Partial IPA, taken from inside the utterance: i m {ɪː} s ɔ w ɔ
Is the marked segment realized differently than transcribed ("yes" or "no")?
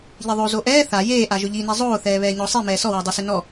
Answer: yes